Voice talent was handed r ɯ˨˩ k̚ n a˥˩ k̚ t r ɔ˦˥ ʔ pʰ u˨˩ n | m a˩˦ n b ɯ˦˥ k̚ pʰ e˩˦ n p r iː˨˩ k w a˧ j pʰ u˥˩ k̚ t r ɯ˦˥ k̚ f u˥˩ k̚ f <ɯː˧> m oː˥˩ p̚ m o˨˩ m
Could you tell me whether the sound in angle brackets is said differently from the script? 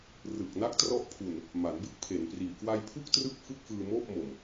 no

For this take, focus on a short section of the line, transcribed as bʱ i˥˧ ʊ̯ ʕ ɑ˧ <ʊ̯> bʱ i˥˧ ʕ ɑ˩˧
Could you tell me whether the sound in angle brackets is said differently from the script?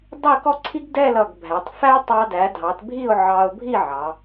no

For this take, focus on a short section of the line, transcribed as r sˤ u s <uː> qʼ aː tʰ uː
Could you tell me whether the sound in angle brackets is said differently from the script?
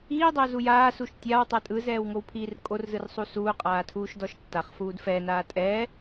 no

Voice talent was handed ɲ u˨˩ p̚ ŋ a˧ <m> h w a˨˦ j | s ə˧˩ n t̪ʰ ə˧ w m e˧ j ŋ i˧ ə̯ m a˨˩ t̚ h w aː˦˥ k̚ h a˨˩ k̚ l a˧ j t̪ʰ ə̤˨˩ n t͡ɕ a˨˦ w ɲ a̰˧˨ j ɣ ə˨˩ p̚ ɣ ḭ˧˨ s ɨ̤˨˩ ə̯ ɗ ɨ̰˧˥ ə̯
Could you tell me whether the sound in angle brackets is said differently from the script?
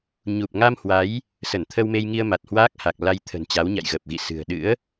no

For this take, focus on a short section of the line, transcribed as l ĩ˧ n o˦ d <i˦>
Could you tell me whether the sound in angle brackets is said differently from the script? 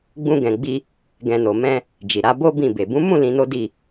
yes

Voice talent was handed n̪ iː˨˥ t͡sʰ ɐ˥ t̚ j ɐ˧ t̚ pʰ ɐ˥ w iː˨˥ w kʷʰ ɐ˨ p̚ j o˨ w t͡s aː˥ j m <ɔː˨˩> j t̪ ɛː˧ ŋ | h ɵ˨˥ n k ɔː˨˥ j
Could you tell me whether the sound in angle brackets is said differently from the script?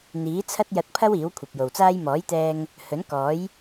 yes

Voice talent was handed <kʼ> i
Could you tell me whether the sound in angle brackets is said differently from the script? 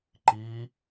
yes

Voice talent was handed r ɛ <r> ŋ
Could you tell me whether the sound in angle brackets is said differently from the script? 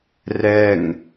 yes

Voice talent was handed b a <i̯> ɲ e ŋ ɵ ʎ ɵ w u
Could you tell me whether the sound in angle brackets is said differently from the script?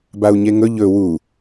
yes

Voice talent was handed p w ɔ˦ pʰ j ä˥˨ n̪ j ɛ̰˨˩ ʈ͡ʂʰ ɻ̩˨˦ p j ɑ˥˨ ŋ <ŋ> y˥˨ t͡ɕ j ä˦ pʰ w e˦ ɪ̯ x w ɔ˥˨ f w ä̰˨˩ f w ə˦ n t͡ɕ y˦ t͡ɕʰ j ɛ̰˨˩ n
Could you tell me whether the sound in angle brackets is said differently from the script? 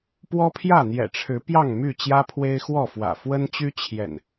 yes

